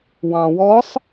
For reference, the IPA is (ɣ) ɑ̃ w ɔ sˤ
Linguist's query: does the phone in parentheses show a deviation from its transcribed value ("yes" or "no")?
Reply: yes